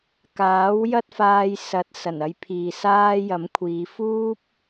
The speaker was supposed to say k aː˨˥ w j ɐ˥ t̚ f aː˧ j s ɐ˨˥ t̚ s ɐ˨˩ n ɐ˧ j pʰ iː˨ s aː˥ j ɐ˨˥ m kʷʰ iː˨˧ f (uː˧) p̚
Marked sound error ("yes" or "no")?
yes